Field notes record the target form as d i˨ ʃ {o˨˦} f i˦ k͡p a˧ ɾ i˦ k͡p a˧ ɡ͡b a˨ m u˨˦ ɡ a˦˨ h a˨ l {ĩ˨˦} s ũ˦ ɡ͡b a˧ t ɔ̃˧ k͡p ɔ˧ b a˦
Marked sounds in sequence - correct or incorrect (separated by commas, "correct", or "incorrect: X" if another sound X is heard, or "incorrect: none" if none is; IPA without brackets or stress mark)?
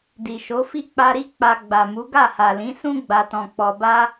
correct, correct